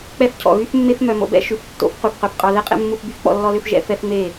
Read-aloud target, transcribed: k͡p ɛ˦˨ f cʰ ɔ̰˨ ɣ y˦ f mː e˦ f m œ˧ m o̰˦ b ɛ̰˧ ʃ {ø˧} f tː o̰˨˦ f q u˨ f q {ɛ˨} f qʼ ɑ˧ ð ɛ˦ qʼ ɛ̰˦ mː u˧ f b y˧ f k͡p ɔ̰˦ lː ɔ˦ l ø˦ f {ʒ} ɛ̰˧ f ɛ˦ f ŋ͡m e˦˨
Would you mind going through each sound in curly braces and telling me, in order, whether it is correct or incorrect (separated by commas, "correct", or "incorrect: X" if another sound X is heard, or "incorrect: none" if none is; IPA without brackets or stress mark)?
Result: incorrect: ʉ˧, incorrect: œ˨, correct